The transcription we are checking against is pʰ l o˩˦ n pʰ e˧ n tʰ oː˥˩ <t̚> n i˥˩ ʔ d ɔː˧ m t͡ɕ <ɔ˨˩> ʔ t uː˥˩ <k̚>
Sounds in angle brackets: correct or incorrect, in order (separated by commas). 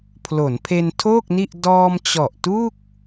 incorrect, correct, correct